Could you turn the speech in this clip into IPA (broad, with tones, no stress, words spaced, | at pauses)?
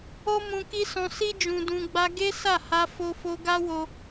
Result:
o˦mũ˧ki˦sɔ̃˧ si˦ d͡ʒũ˧dũ˧ɡ͡ba˦ ɡe˦sa˦˨ ha˧ fo˧fo˧ɡa˦wo˧